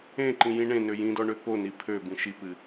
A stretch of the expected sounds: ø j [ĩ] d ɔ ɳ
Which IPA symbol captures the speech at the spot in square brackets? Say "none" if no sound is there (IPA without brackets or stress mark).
ĩ